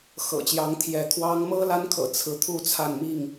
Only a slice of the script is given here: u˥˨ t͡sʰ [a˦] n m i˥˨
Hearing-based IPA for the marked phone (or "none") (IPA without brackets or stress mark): a˥˨